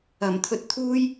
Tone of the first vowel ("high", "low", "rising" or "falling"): low